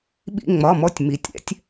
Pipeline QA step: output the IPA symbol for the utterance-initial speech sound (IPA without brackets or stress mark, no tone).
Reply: ɓ